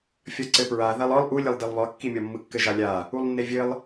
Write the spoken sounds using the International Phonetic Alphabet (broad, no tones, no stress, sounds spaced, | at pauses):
fʲ ɒ ǀ ɘ p ɹ a ð a lˠ ɒ lˠ ʔ u lʲ ɘ lˠ d ɘ lˠ β ɒ kː i mʲ ɒ mː ɯ kː ɘ ʒ a lʲ a | u lˠ nː e vʲ ɘ lˠ